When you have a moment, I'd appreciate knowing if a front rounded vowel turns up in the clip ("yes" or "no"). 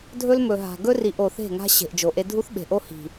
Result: no